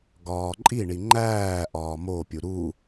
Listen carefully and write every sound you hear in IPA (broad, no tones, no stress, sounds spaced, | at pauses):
ɡ ɒː ǃʼ i ɳ i ŋ͡ǃ æː ʔ ɒː m o pʲ u ɾ u